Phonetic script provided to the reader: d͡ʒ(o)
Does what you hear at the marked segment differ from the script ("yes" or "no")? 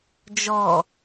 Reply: yes